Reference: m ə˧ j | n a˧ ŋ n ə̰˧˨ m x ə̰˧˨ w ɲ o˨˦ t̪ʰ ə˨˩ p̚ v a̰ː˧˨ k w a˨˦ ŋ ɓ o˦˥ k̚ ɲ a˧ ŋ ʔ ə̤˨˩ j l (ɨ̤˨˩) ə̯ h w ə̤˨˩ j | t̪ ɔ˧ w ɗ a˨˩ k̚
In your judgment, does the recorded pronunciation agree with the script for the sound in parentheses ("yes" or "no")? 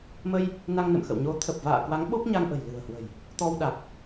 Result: yes